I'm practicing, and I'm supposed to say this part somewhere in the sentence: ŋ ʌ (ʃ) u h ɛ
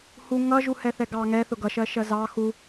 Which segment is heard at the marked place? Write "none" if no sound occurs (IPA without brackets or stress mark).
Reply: ʒ